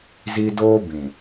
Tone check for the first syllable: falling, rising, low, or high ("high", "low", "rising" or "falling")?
high